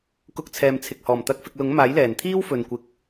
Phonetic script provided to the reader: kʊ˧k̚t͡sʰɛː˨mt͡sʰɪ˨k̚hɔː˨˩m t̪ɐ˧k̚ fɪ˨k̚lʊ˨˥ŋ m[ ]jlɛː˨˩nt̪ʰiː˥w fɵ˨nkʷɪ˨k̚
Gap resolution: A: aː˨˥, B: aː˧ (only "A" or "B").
A